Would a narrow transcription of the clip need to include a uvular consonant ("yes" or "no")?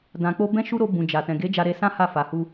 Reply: no